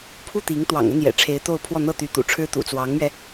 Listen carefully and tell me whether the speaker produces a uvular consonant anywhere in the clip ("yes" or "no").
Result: no